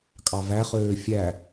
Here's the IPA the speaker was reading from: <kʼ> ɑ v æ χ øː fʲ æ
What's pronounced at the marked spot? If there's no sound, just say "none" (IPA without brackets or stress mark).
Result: kʼ